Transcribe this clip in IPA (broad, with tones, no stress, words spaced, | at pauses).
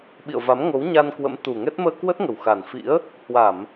ɓḭ˧˨ə̯va˨˦mŋo˨˦w ɲa˧nkwə̰˧˥m t̪u˨˩ŋɛ˦˥t̚ məː˧kwə˦˥t̚ŋə˨˩w xa˨˩nfḭ˧˥ə̯ | hwa˧˩˨m